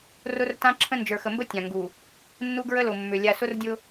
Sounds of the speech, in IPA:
rʊ˦rtã˦ǁʰə̃˦ nd͡ʒə˞˨xə˨mbə˦ tʲã˨ŋɡu˨ | nːu˦ɡɹə˦lʊ˨mːʏ˨ lʲa˨sʊ˦rdʲʊ˦

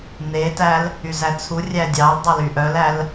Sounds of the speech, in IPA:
n̪etæl | yzæt͡sʰurʲæ dʲɑl dˤɑlyʔœlæl

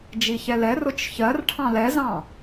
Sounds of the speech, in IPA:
d͡ʒiçɛlɛ rʊt͡ʃçɜr ʈʰɑ̃lɛzɑ̃

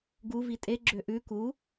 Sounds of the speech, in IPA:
ɡuvi tʼeɡ͡ǁø ʔʉ ku

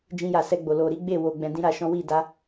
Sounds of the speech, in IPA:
d͡ʒĩ˧ja˨sɛ˧ɡ͡bo˨ lo˨ɾi˨˦ɡ͡be˦˨ wo˨ ɡ͡bɛ̃˧dĩ˦ɾa˧ʃɔ̃˦ wi˦˨ da˨˦

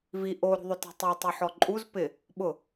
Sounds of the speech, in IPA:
vi ʔoɾṳðˤʊtɛ̤ tˤɛtˤoħɔ ǃʼuz pɪ | ɓʊ

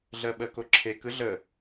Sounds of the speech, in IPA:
ɮɜɓɜkoǁʰek ɯɮə

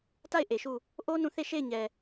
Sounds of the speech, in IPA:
ta˦˨ɪ̯ ʔe˨ʃu˦˨ | ʔo˦ nũ˦˨ θe˦˨ ʃe˦˨ɪ̯ɲɛ˨

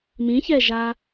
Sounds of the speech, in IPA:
mĩçɛʒa

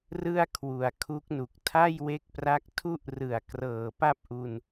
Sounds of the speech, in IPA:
rɯ˥˩a̯kʰwu˩˦a̯ kʰu˦˥k̚nu˨˩k̚ tʰa˥˩jwe˦˥k̚pra˦˥k̚ tʰu˥˩ʔrɯ˨˩a̯ krɤː˨˩pa˥˩p̚ʔu˧n

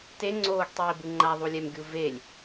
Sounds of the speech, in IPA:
teŋ͡ǀoːɡtˤiː bɯŋ͡ǃaðˤulʲɛm ɡʲuvelʲ

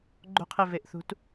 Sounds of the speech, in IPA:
ɡ͡ǃo̤qʰeveʔθṳt

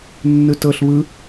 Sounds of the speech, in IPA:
nːɯtɤɬ βɯ

